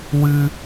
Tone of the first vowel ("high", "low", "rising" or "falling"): high